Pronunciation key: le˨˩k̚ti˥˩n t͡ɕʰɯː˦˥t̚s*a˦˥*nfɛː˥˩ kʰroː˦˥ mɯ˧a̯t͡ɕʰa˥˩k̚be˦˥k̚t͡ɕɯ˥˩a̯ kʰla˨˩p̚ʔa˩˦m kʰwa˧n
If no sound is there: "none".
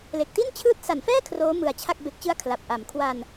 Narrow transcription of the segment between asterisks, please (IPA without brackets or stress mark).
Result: a˩˦